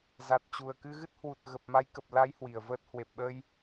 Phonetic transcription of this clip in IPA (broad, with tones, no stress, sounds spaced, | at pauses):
z a˨˩ t̚ t͡ɕ u˨˩ ə̯ k ɨ˧ ɣ ɨ˦˥ t̚ h w u˨˩ t̚ ɣ ə˨˩ p̚ m a˨˦ j k ə˨˩ p̚ l a˨˦ j h w i˨˩ ə̯ v əː˦˥ t̚ h w e˨˩ p̚ ɓ ə˧ j